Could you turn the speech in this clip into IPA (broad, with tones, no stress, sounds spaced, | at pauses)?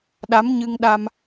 ɗ a˨˦ m ɲ ɨ˧ ŋ ɗ a˧ m